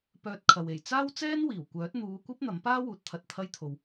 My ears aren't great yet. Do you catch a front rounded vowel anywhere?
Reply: yes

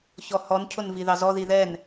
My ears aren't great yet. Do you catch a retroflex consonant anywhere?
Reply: no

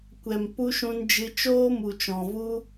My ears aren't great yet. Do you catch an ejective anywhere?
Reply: no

